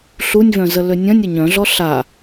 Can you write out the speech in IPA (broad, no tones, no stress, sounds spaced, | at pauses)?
ɬ u nʲ v œ̃ z ə l ø nʲ ɐ̃ nʲ ə ɲ œ̃ ɮ ɔ ɬ a